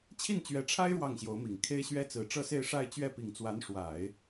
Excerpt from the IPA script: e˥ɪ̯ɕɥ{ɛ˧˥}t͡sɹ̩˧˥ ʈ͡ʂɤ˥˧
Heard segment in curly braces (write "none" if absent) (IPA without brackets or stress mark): ɛ˥